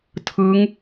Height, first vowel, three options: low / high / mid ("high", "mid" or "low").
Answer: high